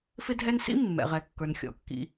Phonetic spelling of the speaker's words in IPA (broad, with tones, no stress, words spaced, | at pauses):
fɪ˦dʱɛ˦nsḭ˥ mːɛ̰˩ʁɛ˩kːə˞˩n xʲɔ̰˩kːḭ˨